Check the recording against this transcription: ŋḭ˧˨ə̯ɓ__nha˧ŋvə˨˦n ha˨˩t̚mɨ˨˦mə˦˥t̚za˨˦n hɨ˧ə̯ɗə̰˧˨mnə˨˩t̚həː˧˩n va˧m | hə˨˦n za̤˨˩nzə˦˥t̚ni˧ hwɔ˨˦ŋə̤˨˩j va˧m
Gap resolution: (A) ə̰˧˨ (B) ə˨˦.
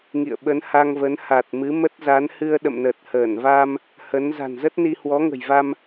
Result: B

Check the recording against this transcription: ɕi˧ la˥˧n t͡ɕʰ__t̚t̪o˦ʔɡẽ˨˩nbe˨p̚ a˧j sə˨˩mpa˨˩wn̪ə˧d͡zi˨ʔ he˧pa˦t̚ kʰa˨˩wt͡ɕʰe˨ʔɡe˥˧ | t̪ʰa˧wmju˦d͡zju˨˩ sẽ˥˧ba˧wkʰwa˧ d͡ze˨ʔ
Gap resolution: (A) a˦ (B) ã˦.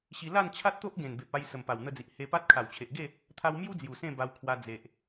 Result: A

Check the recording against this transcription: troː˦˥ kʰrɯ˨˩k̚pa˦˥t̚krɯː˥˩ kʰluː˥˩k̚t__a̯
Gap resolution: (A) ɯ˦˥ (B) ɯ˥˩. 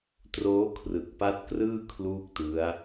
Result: A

